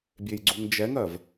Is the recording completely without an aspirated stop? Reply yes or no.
yes